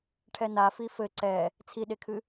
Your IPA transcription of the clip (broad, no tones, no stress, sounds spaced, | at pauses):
ʈʰ ɛ n a f i f ɘ ǀ ɛ | t͡sʰ i ɗ e kʰ ɨ